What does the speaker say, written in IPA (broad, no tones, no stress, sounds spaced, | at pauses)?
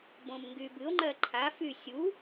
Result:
b õ m ŋ ɡ y b ɨ o̯ ŋ͡ǃ ɜ ǃʰ a f y sʲ u